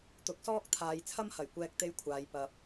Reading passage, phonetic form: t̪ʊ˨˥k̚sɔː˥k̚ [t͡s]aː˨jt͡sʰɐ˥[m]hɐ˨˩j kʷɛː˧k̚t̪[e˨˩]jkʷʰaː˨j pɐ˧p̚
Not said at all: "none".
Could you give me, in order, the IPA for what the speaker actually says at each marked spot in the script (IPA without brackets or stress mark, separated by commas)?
t̪ʰ, m, e˧